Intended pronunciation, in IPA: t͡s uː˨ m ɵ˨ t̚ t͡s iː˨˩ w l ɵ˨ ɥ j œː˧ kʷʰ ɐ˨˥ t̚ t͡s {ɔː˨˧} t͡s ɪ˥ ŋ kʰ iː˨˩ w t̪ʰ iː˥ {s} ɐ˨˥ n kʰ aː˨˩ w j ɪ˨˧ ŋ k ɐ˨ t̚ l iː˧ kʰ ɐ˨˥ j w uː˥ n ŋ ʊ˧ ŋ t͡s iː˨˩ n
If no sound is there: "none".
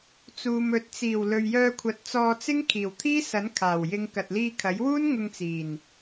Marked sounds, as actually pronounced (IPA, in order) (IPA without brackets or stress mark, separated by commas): ɔː˧, s